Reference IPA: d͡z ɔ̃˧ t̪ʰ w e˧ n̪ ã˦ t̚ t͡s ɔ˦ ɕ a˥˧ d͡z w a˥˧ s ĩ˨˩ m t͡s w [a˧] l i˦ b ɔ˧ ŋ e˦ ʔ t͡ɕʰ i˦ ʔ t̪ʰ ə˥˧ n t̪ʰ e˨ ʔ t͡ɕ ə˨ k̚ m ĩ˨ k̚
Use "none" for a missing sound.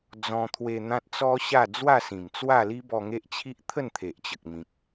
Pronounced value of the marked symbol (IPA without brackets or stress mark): a˥˧